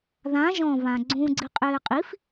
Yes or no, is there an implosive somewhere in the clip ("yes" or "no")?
no